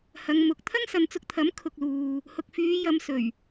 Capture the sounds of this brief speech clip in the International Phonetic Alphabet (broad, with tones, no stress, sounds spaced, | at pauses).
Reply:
h ɐ˨˧ ŋ m ʊ˨˥ k̚ t̪ʰ ɐ˥ ŋ s ɐ˨ n t͡s ʊ˧ k̚ t̪ʰ ɐ˨˥ m kʰ ʊ˨ k̚ l uː˨ | h ʊ˨ k̚ f yː˨˧ j ɐ˨˧ m s ɵ˨˩ ɥ